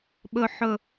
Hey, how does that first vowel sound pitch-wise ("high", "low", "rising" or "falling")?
low